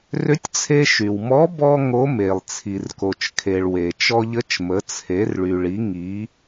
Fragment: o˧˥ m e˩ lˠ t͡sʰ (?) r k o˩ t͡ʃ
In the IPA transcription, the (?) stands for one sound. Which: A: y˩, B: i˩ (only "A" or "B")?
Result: B